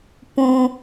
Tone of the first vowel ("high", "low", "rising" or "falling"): high